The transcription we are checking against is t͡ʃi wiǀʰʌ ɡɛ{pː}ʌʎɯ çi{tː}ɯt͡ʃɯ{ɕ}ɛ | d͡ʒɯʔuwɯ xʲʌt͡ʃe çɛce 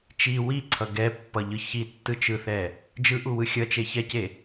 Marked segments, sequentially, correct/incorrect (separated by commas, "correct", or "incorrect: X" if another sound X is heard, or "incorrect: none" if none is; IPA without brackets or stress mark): correct, correct, incorrect: θ